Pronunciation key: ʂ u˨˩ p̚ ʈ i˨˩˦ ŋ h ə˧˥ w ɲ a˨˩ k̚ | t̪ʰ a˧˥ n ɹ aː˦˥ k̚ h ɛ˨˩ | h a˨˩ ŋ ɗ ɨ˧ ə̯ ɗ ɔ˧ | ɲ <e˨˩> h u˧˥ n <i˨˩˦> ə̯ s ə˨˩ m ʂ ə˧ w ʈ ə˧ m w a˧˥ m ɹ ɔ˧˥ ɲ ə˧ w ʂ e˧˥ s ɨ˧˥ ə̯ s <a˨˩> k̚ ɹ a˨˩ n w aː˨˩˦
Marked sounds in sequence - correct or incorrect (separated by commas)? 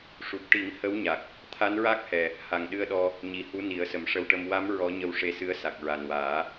incorrect, correct, correct